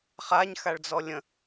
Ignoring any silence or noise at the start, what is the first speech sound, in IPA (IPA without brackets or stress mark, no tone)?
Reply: χ